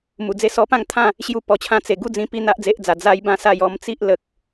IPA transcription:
mu˨˩d͡ze˥˧ sɔ˧pã˥˧ŋt̪ʰã˥˧ | ɕju˧pɔ˨˩t͡ɕʰã˧ t͡se˨˩ ɡu˥˧d͡zĩ˧ pi˥˧ n̪a˦ʔd͡ze˦ʔd͡za˨˩ d͡za˦jbã˦sa˥˧j ɔ˧mt͡si˦ʔ lə˦k̚

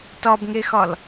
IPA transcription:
tɒbŋexɒl

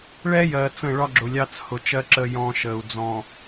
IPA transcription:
ɭɛ˦jɜ˨ t͡sə̃˦˨ɭɒ˦ɡ͡ǁʊ˨ lʲɑ˦t͡shʊ˨t͡ʃɜ˦ ǁə˦jɔ̃˦ʃə˨u̯ d͡zɔ̃˨

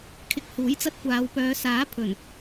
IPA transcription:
kʰɪ˧k̚ huː˨˥jt͡sɐ˧t̚kʷaː˨˧w pœː˨˧saː˨˥ pʰɵ˨˩n

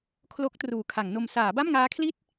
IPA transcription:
kʰlo˦˥k̚ truː˩˦kʰa˩˦ŋno˧m saː˩˦ba˥˩mŋaː˦˥kʰli˥˩t̚

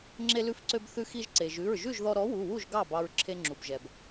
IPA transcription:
ŋ͡ǁe˧lʉ˧fǀø˧b θʉ˧xi˧ʒǀe˩ ʒʉ˩˧˩ɹʒʉ˥˨ʒðɔ˧ ɾɔ˨˥wu˩˧˩wu˥˨ʒ ɡɑ˥˨bɑ˧ɹ ǁʰe˧ŋ͡ǁu˩bʒɛ˩b

